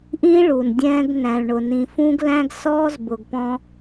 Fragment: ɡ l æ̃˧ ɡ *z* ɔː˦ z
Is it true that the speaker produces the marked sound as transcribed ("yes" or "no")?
no